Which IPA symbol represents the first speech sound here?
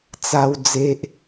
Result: t͡s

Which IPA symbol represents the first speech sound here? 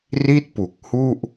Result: r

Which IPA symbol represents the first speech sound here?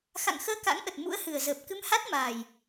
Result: x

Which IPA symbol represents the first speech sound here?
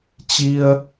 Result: t͡ɕ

